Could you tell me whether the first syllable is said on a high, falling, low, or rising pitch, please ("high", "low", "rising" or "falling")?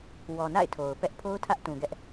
low